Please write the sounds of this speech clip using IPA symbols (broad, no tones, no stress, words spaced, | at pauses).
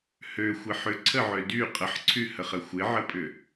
høxʷɪ ħʏǀʰəʕø dy qʼəħǀʰyhəχə xʷɪʕəpʼʏ